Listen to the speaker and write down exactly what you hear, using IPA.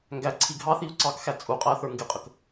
ŋ ɡ æ ǀʰ i ɡʱ ɑ θ i u̯ ǀ ɑ k x æ t͡sʼ u qʼ æ θ ə˞ ŋ ɡ ɪ qʼ ə k

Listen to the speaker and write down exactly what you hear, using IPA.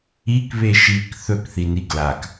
i k β e ʃ i k θ ɵ k θ i n i ɡ l a k

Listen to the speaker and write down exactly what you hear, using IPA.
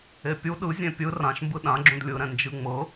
e pʲ u ɗ ɯ zʲ ẽ pʲ ɯ r ã ʃ m b ɯ ɗ ã ɡ͡ǁ ũ d lʲ ɯ ɾ ɛ̃ n d͡ʒ ɯ ŋ͡m ɤ

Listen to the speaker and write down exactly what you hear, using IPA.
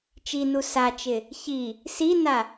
t͡ʃ i n u s a t͡ʃ ɪ | ç i | s i n a

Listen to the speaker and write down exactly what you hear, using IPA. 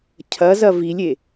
cʰ ɐ z ɐ v i lʲ e

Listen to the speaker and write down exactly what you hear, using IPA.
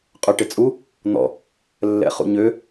qʼ ø ʈ ɪ t͡sʼ u | n̪ ɔ̰ | lː ɛ̰ χ ṵ ɲ ø

